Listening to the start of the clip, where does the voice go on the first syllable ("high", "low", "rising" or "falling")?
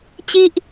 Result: high